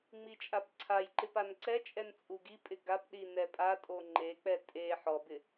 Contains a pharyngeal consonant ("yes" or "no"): yes